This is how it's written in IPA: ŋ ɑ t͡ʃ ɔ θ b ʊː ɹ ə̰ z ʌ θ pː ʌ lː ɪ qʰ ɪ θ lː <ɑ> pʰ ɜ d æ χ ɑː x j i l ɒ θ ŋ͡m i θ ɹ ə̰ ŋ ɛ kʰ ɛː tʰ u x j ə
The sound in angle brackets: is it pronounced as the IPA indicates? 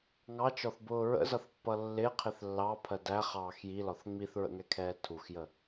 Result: yes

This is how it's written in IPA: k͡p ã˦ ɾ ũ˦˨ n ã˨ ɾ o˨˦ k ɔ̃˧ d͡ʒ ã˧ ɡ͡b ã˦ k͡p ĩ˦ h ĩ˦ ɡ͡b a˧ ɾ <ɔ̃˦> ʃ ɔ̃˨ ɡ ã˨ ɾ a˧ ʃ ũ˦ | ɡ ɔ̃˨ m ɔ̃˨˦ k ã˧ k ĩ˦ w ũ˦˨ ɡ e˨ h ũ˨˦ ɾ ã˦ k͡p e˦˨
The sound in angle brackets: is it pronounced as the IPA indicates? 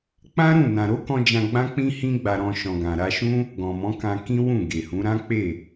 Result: no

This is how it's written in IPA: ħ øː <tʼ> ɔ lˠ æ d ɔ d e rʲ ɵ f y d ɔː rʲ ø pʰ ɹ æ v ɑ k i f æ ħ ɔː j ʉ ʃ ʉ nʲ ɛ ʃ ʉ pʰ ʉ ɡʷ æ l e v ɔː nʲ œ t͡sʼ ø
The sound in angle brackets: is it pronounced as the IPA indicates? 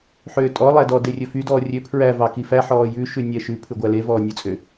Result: yes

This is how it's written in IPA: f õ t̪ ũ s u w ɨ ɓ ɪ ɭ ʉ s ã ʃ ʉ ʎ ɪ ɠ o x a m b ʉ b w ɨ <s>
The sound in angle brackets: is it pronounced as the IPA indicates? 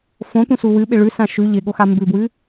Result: no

